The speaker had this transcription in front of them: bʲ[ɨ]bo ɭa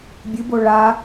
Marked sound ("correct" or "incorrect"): correct